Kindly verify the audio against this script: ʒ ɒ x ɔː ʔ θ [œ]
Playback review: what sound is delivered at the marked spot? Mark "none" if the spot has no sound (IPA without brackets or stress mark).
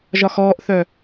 œ